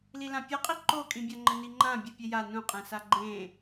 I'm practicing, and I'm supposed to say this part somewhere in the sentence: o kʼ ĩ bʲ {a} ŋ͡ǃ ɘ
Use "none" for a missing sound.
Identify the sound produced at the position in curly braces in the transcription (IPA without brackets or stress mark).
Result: a